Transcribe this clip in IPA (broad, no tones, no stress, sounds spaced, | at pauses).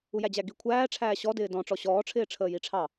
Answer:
u j æ d͡ʑ æ ɡ i kʷʰ æː ʈ͡ʂʰ æː ɕ ɔ d ɪː d ɔ̃ ʈ͡ʂ ɔ ɕ ɔː ʈ͡ʂʰ ɪː ʈ͡ʂʰ əː j i ʈ͡ʂʰ ɑ